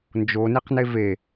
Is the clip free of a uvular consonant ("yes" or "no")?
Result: no